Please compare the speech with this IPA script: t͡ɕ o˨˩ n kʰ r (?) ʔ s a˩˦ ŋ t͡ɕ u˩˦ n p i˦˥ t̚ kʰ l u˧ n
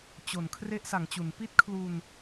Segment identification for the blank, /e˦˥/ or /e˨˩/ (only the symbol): e˦˥